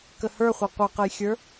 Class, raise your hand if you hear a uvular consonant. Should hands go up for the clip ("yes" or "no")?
yes